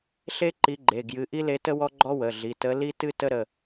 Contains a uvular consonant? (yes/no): no